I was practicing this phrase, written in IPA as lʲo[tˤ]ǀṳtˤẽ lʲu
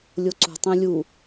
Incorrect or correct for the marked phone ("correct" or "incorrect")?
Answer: incorrect